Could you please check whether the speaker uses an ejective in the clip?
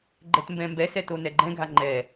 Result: no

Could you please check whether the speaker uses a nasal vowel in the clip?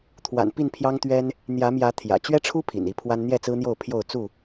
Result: no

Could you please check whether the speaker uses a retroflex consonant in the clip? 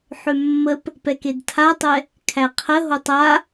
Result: no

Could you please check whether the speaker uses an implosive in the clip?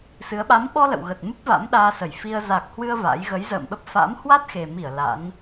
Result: yes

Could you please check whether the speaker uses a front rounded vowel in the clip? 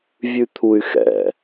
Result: yes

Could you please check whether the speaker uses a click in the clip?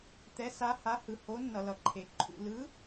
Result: yes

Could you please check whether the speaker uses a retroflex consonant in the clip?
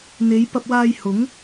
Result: no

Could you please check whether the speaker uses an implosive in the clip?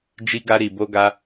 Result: no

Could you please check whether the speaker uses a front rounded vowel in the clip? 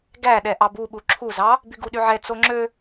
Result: yes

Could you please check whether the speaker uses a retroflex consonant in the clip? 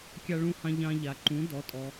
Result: yes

